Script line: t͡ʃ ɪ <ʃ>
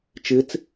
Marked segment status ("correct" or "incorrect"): incorrect